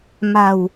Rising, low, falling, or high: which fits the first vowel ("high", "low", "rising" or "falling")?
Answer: low